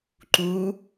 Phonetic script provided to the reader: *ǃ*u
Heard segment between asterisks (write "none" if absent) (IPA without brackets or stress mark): ǃ